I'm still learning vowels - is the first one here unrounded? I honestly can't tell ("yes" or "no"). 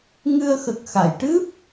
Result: yes